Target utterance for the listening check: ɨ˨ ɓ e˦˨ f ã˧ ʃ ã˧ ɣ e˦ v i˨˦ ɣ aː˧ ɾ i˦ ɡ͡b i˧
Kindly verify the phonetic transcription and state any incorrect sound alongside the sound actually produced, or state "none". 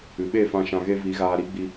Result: none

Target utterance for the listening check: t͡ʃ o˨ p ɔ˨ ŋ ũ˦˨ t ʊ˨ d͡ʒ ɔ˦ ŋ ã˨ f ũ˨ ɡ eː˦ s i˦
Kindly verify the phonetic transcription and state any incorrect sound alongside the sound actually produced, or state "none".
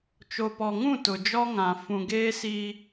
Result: none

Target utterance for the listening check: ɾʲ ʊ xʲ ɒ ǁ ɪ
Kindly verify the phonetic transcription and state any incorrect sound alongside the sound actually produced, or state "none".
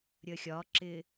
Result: ʊ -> ə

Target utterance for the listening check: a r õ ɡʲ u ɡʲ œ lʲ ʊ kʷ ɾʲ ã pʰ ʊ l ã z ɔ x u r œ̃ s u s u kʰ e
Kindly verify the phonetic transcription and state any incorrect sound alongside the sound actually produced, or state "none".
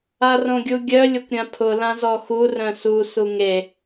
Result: kʰ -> ŋ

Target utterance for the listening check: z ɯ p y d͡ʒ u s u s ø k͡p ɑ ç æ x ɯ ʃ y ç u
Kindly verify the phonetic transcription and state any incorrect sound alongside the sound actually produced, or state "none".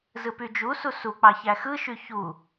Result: ø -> u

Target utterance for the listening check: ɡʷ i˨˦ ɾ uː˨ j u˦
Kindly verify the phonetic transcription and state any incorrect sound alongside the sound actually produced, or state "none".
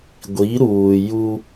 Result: none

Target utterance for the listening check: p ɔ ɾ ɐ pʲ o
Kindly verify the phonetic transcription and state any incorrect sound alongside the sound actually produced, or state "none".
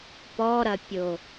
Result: none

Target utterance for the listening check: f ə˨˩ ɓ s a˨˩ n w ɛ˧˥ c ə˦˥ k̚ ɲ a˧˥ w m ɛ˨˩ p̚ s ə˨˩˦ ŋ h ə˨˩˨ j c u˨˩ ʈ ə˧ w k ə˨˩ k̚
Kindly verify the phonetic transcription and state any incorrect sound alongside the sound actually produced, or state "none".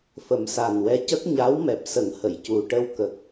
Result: ɓ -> m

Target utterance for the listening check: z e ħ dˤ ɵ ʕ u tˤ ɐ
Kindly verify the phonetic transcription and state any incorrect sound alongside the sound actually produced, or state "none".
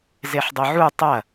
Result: none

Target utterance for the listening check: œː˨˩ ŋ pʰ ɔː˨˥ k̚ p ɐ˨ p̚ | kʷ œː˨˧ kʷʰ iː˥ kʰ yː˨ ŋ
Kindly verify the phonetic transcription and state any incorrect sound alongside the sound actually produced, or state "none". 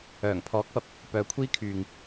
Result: kʷ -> p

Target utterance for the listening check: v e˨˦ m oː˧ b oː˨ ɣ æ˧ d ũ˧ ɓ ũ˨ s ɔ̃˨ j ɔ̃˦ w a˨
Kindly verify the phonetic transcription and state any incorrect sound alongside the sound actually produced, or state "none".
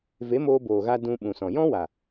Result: æ˧ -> a˧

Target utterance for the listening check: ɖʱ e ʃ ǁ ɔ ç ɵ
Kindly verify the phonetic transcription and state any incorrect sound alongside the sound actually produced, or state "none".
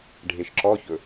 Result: none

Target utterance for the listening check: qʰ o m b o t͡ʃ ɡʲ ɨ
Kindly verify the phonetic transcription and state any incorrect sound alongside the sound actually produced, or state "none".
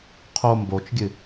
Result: none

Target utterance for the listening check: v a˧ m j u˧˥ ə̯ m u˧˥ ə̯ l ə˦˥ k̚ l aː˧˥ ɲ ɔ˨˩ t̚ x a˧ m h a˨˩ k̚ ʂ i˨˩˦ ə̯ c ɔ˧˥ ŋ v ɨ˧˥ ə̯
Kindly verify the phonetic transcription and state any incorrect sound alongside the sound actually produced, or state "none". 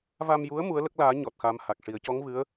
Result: none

